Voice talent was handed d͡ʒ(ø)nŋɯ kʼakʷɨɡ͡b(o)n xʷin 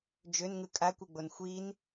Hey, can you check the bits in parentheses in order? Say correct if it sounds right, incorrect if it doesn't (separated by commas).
correct, correct